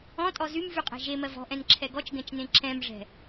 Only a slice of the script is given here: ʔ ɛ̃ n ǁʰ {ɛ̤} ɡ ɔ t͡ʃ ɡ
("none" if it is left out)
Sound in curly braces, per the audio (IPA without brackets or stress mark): ɛ